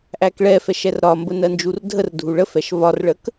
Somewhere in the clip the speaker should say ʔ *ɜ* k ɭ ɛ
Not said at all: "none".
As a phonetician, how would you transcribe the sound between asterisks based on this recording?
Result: æ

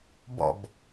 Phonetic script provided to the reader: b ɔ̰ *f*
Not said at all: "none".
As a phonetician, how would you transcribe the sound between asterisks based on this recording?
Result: b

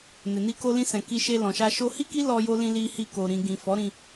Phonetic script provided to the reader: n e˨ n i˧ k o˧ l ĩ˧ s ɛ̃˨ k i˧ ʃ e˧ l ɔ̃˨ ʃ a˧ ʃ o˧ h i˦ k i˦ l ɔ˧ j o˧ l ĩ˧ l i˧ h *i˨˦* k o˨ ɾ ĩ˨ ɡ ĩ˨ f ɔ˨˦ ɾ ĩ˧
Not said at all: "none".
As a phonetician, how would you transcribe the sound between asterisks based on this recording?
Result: i˧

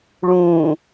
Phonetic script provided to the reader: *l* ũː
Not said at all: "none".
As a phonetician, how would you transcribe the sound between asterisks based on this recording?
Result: ɭ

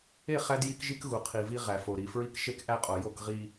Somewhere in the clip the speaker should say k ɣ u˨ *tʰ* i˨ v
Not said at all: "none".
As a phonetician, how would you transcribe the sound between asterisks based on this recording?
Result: qʰ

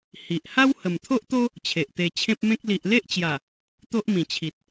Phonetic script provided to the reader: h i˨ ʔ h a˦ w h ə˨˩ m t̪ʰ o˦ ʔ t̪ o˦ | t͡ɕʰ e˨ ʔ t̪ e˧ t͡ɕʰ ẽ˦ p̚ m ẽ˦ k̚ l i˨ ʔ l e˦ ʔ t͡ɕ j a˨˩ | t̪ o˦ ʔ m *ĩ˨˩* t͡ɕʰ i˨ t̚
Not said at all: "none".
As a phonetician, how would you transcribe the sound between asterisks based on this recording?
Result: ĩ˨˩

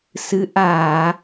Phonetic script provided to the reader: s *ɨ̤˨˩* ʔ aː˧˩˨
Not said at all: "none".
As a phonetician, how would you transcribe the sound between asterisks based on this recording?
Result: ɨ˨˦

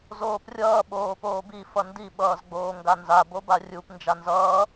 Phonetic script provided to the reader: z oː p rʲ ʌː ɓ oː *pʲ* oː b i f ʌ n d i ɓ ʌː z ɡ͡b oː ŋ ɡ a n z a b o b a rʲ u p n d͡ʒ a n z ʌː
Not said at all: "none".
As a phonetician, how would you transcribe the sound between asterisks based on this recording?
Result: p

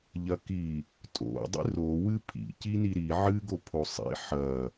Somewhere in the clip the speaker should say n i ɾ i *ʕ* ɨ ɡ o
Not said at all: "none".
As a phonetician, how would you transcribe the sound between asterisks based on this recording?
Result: ʕ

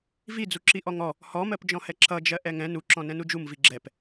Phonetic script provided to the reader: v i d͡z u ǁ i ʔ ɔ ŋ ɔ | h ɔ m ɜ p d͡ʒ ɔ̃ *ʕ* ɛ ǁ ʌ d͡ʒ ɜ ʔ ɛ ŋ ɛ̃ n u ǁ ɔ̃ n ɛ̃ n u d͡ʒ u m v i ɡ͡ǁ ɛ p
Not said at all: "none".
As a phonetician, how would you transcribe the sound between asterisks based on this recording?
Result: h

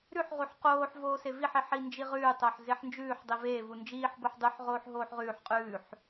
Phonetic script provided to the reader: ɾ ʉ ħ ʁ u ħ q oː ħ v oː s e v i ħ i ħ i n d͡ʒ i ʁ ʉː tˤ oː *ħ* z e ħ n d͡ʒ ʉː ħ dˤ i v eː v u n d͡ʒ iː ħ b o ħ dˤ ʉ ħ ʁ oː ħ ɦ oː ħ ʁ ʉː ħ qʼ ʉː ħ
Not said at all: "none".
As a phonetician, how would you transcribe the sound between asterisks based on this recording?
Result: ħ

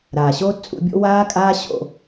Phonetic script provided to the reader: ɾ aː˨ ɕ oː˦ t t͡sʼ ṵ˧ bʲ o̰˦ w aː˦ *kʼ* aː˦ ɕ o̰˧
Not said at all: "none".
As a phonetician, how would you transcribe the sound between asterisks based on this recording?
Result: kʼ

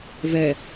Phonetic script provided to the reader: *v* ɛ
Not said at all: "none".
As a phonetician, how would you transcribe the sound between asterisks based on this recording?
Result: v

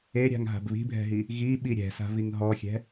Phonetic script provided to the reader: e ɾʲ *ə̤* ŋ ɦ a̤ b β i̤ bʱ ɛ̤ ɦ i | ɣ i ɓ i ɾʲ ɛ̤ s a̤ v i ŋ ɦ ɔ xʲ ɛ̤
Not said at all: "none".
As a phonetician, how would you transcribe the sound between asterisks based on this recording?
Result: a̤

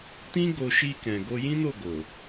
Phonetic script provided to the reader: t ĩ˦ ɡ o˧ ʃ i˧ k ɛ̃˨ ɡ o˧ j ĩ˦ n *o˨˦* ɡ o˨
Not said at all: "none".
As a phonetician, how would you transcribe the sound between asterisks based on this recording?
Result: o˦˨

